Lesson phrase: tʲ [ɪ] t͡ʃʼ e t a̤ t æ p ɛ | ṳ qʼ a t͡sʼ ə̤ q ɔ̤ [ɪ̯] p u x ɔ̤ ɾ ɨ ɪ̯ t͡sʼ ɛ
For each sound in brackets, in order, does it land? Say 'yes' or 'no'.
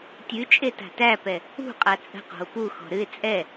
no, no

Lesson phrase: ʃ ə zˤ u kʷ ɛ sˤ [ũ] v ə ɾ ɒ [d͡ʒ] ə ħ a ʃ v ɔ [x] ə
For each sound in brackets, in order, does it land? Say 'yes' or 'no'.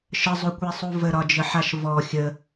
no, yes, no

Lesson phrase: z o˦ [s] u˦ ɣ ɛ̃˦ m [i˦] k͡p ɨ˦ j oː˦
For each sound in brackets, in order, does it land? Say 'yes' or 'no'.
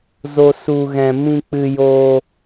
yes, no

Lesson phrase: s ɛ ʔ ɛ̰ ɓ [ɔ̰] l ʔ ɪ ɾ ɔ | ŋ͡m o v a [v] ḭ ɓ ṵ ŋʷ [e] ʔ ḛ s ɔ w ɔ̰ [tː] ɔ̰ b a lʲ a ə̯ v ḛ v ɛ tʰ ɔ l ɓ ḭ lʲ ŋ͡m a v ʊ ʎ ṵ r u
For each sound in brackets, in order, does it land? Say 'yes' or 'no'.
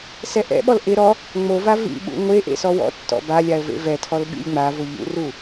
no, yes, yes, yes

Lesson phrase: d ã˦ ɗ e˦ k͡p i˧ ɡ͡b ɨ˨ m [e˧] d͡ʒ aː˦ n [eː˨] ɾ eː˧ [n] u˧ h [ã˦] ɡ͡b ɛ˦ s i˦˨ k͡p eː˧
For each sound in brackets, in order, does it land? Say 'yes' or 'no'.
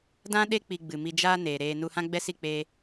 no, yes, yes, yes

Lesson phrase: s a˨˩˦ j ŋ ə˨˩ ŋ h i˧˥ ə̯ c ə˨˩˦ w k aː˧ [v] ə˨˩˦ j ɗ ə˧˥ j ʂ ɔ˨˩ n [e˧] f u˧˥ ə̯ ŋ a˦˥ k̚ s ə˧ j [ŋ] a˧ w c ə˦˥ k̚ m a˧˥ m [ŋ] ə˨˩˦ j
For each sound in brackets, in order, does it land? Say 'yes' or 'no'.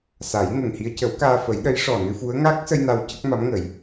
no, no, no, yes

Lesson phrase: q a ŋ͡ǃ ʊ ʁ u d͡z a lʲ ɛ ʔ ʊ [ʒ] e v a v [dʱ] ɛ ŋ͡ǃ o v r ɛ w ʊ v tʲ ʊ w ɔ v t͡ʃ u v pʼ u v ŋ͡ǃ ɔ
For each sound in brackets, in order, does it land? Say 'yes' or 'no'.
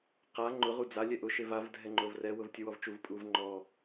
no, yes

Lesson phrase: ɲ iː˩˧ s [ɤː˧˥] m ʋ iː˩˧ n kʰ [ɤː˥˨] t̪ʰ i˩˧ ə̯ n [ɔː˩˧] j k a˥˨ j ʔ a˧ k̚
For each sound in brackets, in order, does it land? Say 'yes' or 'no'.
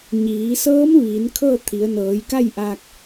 yes, yes, no

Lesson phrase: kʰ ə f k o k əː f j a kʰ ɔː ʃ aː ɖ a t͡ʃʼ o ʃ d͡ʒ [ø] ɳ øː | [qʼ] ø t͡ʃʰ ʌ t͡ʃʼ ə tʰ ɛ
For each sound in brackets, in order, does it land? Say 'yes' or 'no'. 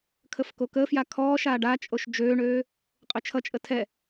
no, yes

